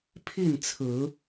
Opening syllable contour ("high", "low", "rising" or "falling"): falling